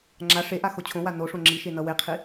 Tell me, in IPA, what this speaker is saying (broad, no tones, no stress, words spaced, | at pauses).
ŋ͡ǁa ʂeʔa xot͡ɕʰõwa noʂõ ŋ͡ǁiʃe nʌweqʰi